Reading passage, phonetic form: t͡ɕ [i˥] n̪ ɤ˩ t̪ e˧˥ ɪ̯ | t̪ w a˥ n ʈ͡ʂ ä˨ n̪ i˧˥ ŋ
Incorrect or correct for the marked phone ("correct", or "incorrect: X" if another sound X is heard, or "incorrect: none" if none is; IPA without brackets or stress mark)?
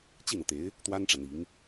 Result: incorrect: i˥˩